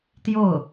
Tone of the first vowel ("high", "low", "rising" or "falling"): falling